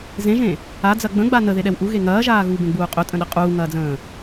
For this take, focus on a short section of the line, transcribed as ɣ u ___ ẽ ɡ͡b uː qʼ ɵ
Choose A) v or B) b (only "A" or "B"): B